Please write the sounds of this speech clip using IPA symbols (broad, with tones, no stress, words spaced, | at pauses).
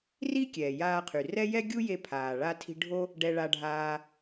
ri˥ kʲɛː˩jaː˧qʰy˩rɛ˥ jɛ˥ɡʲu˥je˧ pʰaː˩ ɭa˧tʰi̤˧ ɖʱo˥ | ɖɛ˧ɭa˧ɖʱaː˧